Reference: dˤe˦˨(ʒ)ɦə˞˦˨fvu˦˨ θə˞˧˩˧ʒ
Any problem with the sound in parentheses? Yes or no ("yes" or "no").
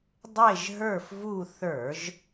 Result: no